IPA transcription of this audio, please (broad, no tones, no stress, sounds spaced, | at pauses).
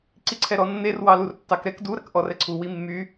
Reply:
ǀ i ǀʰ ɛ ɾ ɔ nː e r w ɑ l u r tː ɑ k ɾ ɛ k d u ɾ ɐ k ʔ ɔ r ɛ ǀʰ u w i mː y